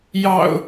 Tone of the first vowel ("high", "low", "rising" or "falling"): low